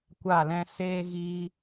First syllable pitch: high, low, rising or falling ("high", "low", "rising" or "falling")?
falling